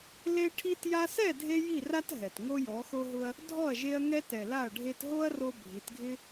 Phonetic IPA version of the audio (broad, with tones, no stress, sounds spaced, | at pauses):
l e˦ ʈʰ i˦ t j a˧ s ɛ˦˨ dʱ e˧ j i˦˨ r a˦ t ɦ ɛ˨ t ŋ o˦ j ɔ˨˦ x o˦ ɦ ʊ˦ ɐ̯ | dʱ ɔ˦˨ ɐ̯ ʒ e˧ ɐ̯ ŋ ɛ˧ t ɛ˨ l a˦˨ ɐ̯ ɖʱ e˧ t ɦ o˦ ɐ̯ r o˧ bʱ i˨˦ t ɡʱ ɪ˦